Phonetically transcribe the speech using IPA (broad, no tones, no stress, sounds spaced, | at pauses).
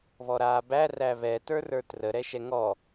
β ɔ ɾ aː b æ r æ β ɛ t ə˞ r ə˞ t r ə ɾ ɛ ʃ ɛ ŋ ɔ